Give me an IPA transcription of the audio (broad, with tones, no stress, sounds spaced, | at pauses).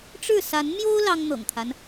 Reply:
ʈ͡ʂ ɻ̩˥˨ s a˨˦ n m j o˦ ʊ̯ l ɑ˦ ŋ n̪ ɤ̰˨˩ ŋ t̪ʰ a˦ n